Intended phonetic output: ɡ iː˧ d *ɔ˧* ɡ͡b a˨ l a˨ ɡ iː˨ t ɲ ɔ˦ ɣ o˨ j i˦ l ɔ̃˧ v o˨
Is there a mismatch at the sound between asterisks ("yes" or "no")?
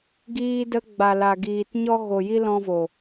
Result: yes